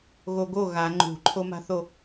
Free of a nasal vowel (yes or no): yes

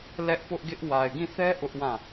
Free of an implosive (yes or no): yes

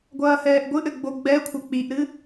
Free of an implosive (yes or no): yes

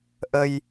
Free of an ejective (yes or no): yes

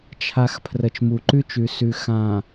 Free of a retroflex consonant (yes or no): yes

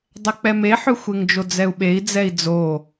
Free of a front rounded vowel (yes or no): no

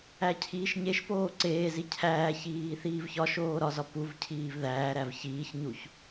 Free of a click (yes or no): no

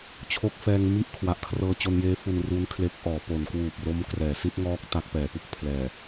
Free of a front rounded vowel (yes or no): yes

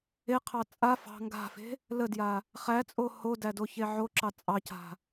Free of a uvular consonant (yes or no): no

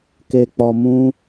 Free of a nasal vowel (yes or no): no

